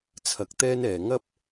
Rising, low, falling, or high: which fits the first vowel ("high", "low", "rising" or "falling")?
rising